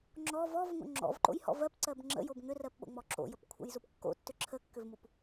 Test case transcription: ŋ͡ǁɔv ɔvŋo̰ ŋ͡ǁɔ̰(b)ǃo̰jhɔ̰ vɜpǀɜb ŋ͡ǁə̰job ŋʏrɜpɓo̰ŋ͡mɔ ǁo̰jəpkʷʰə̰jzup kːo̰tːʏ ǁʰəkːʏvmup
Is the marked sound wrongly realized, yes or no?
yes